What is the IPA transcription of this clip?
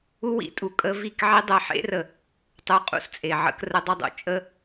u˦ w ḭ˦ tʼ u˨ kʼ ə˧ v i˦˨ k ʕ i˦ dˤ ɛ˧ ħ ḛ˦ r ə˨ | tˤ u˨˦ qʼ ṵ˧ s t͡sʼ e˨ ʕ ə̰˧ k r ə˧ dˤ ə˧ dˤ ṵ˨ t͡ʃʼ ə˧

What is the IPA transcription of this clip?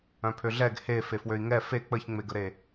œ̃ pʰ ø ɮ ɛ ɡ h e f e f w ø i̯ ŋ ɛ f e k͡p ə ç ŋ͡m e ɡ ə ɾ e

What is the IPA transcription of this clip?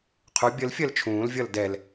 qʰ u bʲ ə l fʲ ɜ l t͡ʃʰ ũː l vʲ ʌ l d ɛ l

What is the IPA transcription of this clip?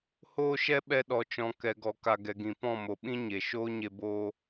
h oː˦ ʃ ɛ˦ ɓ ɛ˧ ɗ ɔ˨ t͡ʃ ɔ̃˨ k ɛ˨ ɡ ɔ˨ k a˨ ɡ ɛ˨ ɡ ĩ˨ p ɔ̃˦˨ m o˨ ɓ ĩ˦ ɲ e˨ ʃ oː˦ ɲ e˧ b oː˧

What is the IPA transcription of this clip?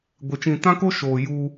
ɡʷ e˨ t͡ʃ ĩ˨ t ã˦ k o˦ ʃ oː˨ j u˦

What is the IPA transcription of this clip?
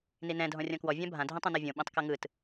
n i n ɛ̃ dʱ ɔ̃ rʲ ɔ̃ k w ɔ vʲ ã bʱ ã dʱ ĩ tˤ õ n ɔ vʲ õ ɓ ĩ tˤ k ɤ ŋ ɯ t

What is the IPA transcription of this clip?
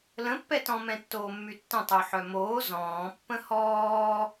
l ə̃ pː ɛ t ɔ̃ m ɛ̃ tː oː mː y tː ə̃ tˤ u ħ œ m oː z ɔ̃ː pː ə̃ h ɔː

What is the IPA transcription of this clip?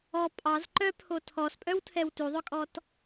ɔ pʼ ɑ z ǃ œ pʰ o tʰ ɔ s pʼ œ w tʰ ɛ w t ʉ ðˤ œ kʼ ɔ t

